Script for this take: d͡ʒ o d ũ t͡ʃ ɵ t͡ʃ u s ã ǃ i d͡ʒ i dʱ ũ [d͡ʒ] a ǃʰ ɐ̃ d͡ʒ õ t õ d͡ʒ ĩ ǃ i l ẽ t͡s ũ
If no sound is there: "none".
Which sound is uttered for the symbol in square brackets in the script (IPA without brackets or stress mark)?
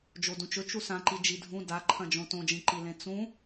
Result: d